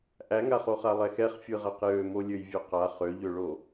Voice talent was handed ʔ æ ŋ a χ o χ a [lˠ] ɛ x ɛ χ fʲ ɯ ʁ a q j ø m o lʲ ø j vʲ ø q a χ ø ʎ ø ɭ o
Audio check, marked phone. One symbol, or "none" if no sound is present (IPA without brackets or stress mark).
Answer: lˠ